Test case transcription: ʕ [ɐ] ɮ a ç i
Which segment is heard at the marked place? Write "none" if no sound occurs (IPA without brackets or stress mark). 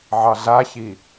ɑ